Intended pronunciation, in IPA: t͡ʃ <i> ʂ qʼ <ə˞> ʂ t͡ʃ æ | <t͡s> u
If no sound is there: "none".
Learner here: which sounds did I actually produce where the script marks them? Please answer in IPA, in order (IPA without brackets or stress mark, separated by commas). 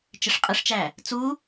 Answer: ɪ, ə, t͡s